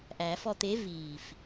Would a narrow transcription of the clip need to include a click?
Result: no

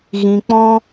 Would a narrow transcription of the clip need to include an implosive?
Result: no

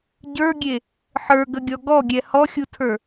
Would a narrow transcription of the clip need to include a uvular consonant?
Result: no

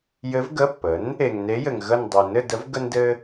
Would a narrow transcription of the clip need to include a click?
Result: no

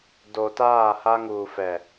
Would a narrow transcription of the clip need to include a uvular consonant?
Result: no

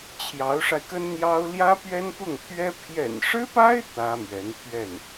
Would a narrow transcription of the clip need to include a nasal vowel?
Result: no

